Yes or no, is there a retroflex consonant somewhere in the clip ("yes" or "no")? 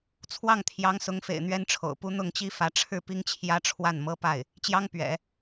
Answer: yes